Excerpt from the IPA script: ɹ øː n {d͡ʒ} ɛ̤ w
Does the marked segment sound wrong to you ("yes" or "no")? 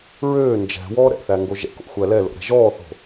no